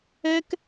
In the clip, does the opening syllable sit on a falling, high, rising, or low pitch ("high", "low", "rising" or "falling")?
high